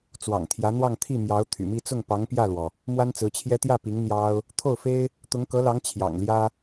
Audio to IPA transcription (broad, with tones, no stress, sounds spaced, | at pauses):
t͡s w ɑ̰˨˩ ŋ t̪ʰ j ä˧˥ n̪ w ɑ˥˧ ŋ t̪ʰ i˥˩ m j ɑ˧˥ ʊ̯ t̪ʰ y̰˨˩ m i˥˧ t͡s ʊ˥˩ ŋ p ɑ˧˥ ŋ p j ä˥˩ l w ɔ˩ | m w a˥ n t͡s ɹ̩˧˥ t͡ɕʰ j ɛ˥ t̪ j ä˥˩ p i˧˥ ŋ n̪ j ɑ˥ ʊ̯ | t̪ʰ o˥˩ ʊ̯ f e˥ ɪ̯ | t̪ ʊ˧˥ ŋ k ɤ˧˥ l ɑ˧˥ ŋ t͡ɕʰ j ɑ̰˨˩ ŋ l j ä˥